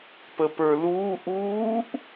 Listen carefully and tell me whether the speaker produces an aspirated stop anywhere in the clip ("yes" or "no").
no